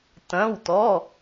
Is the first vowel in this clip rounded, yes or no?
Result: no